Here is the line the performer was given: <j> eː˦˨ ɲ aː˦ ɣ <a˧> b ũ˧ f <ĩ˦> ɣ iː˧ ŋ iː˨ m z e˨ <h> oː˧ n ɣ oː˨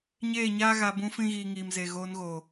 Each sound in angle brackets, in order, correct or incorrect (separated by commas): incorrect, correct, correct, incorrect